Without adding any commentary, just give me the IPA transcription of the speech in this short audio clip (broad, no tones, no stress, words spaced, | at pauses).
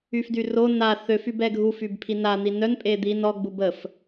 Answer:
yfdyro na θøfyb ɛɡʱufyb pʰina n̪inœn pʼed̪in ɔɡ͡bub əf